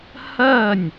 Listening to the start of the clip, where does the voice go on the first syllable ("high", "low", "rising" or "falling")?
falling